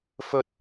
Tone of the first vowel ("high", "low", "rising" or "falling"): high